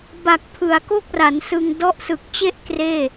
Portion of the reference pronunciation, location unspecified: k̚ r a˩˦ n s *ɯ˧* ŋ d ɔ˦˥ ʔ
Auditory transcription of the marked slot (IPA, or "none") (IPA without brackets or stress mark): ɯ˧